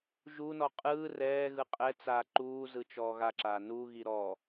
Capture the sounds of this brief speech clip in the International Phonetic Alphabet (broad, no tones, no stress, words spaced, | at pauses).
ʒunɔ qʼɯː rɛːɣɯ qʼɛt͡saː ǃuːzɯt͡ʃɔː ɣaǁaː nuɣi ɾɔ